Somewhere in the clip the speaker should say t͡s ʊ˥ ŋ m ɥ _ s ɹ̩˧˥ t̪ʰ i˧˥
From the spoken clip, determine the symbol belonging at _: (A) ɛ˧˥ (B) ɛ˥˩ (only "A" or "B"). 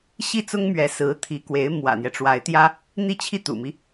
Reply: A